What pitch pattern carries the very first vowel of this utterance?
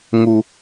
low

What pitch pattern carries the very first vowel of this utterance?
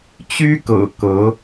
high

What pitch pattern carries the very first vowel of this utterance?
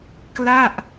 falling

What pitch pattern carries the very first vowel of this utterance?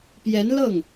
rising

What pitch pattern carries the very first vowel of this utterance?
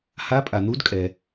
rising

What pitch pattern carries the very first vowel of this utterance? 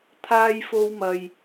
high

